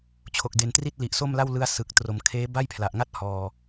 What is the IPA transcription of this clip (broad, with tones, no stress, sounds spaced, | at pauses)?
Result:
t͡ɕʰ o˨˩ k̚ d e˩˦ n t r i˥˩ t̚ l i˨˩ ʔ s o˥˩ m l a˥˩ w l ɯ˦˥ a̯ s ɯ˨˩ k̚ t r o˩˦ m kʰ eː˦˥ b a˥˩ j pʰ l a˨˩ ʔ ŋ a˥˩ t̚ h ɔː˨˩